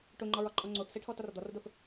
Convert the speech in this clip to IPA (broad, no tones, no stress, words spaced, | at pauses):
ʈoŋ͡ǃɒɹɒǃʼɔ ŋ͡ǀoθseʈʰɔ tɒrd̪ɒrdoθ